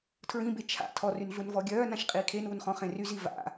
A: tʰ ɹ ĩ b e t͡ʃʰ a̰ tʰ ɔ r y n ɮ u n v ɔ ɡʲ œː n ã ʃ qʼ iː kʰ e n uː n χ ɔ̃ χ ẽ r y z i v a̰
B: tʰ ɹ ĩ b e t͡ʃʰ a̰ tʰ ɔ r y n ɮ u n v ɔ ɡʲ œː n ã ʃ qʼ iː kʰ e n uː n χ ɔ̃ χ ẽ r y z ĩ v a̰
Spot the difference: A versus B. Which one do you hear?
A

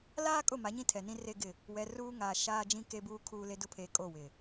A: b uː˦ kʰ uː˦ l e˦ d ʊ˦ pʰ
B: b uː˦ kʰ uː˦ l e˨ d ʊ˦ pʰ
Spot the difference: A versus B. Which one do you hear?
A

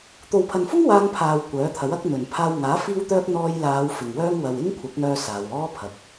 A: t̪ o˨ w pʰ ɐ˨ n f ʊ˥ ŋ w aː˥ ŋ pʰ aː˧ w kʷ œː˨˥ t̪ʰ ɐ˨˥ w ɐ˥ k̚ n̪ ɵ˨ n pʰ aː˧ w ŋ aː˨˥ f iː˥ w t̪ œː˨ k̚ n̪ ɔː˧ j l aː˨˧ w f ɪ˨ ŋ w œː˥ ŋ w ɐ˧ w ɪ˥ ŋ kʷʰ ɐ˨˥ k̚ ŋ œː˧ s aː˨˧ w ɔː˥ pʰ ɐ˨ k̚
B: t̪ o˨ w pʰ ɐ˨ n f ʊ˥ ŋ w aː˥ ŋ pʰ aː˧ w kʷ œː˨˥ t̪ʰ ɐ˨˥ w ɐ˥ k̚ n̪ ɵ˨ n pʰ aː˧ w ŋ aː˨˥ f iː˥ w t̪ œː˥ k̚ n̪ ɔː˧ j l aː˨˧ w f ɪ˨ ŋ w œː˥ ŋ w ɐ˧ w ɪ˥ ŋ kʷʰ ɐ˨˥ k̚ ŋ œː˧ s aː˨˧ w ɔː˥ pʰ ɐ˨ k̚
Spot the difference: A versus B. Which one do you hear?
B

